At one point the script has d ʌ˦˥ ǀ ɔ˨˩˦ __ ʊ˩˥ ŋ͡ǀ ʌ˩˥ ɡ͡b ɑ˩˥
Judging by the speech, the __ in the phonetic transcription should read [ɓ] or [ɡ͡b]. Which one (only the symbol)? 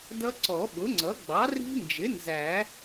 ɓ